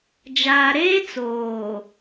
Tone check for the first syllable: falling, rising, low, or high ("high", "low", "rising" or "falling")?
low